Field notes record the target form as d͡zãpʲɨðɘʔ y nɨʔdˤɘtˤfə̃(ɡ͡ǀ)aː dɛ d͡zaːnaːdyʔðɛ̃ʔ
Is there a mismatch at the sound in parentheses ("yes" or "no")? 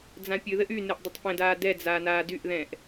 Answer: yes